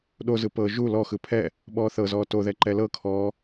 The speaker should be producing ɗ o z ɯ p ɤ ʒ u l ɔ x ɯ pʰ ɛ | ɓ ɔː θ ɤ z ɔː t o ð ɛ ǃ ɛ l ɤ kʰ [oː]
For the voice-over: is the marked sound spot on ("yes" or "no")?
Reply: no